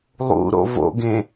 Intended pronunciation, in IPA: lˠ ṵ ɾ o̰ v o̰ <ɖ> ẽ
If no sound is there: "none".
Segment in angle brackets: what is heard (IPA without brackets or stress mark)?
ɡ